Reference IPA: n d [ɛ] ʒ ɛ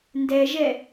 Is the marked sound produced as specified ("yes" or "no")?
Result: yes